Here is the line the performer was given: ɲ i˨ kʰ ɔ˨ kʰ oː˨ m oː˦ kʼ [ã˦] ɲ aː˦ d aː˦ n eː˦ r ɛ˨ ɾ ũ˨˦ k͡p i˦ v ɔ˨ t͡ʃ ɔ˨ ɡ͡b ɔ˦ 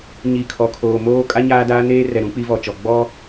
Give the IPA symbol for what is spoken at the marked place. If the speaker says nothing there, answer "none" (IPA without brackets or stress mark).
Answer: a˦